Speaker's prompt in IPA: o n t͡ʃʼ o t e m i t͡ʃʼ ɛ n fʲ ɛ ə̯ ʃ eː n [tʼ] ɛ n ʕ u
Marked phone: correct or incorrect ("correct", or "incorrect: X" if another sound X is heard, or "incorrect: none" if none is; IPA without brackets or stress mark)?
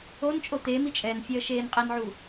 incorrect: qʼ